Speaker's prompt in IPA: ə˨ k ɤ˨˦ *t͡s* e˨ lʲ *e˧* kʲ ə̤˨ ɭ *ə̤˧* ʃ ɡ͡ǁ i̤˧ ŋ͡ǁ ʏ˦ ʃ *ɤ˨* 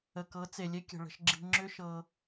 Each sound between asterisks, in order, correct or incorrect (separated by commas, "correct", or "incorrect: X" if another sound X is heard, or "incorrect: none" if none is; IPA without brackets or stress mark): correct, incorrect: e˦, correct, incorrect: ɤ˧